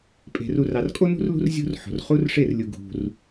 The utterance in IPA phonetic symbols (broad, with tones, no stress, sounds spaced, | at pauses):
pʼ e̤˨ r u˨ r ɑ˨ r kʼ o˦ n ṳ˦ r l ṳ˦ r zʲ ṳ˦ r ħ o̤˨ r χ u˦ r ʂ e˦˨ r lʲ u˦ ɡʱ ṳ˦ r